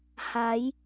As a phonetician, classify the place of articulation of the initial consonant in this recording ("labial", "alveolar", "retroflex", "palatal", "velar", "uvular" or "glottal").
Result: glottal